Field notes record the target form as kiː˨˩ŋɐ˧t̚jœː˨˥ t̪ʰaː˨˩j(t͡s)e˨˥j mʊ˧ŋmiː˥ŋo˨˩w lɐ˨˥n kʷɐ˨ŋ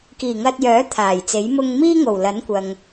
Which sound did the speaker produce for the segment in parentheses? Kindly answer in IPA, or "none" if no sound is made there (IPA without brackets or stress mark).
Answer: t͡s